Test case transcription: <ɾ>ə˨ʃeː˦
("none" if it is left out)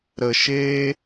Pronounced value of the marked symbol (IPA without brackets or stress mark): ɾ